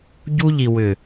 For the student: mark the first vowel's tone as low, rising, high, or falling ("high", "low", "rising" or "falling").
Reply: high